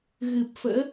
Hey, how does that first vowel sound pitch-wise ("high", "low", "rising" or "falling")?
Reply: low